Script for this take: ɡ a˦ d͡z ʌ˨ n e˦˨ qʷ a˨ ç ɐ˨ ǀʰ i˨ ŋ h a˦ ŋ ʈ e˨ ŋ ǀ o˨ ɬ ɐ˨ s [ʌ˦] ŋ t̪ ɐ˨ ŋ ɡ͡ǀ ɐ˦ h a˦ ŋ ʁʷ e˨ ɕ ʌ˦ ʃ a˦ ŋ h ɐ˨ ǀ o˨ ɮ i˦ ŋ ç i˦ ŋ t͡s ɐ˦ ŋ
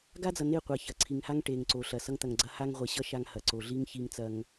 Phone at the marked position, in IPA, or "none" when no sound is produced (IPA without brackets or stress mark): ʌ˦